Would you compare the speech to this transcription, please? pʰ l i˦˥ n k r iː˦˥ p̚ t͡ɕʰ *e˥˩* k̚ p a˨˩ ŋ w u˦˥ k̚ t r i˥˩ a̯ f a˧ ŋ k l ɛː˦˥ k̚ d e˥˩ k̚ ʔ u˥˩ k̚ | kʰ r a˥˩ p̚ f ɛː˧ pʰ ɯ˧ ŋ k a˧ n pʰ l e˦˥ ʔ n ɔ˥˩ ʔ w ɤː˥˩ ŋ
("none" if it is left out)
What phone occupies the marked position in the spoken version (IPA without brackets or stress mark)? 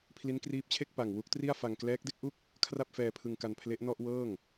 e˥˩